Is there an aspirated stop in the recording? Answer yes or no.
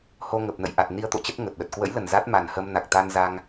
no